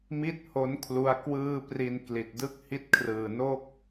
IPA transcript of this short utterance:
m i˥˩ t̚ h o˦˥ n kʰ l u˦˥ a̯ k w ɯː˥˩ p r i˧ n k l i˨˩ t̚ d ɯ˥˩ k̚ h i˥˩ t̚ kʰ r ɯː˨˩ n o˥˩ k̚

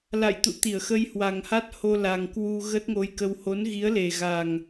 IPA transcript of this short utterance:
l a̰˧˨ j t̪ ṵ˧˨ t̪ i˧˩ ə̯ x ə˧ j h w a˨˩ ŋ h a˦˥ t̚ h o˧ l a˨˩ ŋ k w u˧ ɣ ə˦˥ t̚ ŋ o˧ j k ə˧ w h o˨˦ n ɣ i˨˦ ə̯ l e˨˩ ɣ a˨˩ ŋ

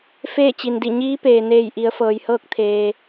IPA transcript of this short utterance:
f eː˥˨ t͡ɕ i˩ n d i˧˩ ɲ iː˧˥ p eː˩ n eː˧˩ j ʔ i˩˧ ə̯ f ɤː˩ j h ɤː˥˨ k̚ t̪ʰ eː˩

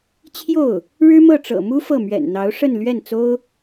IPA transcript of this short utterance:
t͡ɕʰ j o˥˩ ʊ̯ | ɻ ɻ̩˥ m ɤ˥˩ ʈ͡ʂ ɤ̰˨˩ m u˥ f ɤ˥˩ m ɥ ɛ̰˨˩ n n̪ ɑ˧˥ ʊ̯ ʂ ə˥˧ n l ɥ ɛ˥˩ n t͡s o˥ ʊ̯

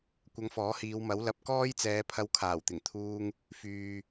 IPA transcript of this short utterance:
kʷ ɐ˧ ŋ f ɔː˨˥ h iː˨˧ w m ɐ˨˥ w l ɐ˨ p̚ k ɔː˥ j t͡s ɛː˨˧ pʰ ɐ˧ w kʰ aː˨˩ w t̪ ɪ˨˩ ŋ t̪ʰ uː˧ ŋ | f yː˨

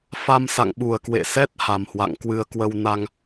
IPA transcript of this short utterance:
f a˧ m s a̰˧˨ ŋ ɓ u˨˩ ə̯ k w ḛ˧˨ s ɛ˦˥ t̚ h a˨˩ m h w a̰˧˨ ŋ k w ɨ˧ ə̯ k w ə˧ w n a˧ ŋ

